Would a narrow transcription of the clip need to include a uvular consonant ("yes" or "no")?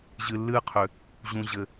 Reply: yes